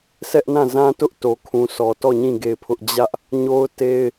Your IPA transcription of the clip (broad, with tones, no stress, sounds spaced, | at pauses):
s ɛ˦ ʔ n ã˦˨ z ã˦ t ʊ˦ ʔ t o˨ kʰ ũ˨ sʰ ɔ˨ t ɔ˦˨ ɲ ĩ˦˨ ɡ e˦˨ ɪ̯ pʰ ʊ˦ ʔ d͡ʑ ä˦ ʔ | ɲ o˦ ʊ̯ t e˦ ɪ̯